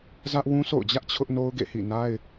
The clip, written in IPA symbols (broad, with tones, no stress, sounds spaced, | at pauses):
z ä˦ ʔ w ũ˦ sʰ o̰˦˨ ʊ̯ d͡ʑ ä˦ ʔ t͡ɕʰ ʊ˦ ʔ n o˦ ʊ̯ ɡ ḛ˦˨ h ḭ˦˨ n a˦ ɪ̯